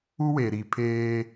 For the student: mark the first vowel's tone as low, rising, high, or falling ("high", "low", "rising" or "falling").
high